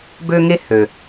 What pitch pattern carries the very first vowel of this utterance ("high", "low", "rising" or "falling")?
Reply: high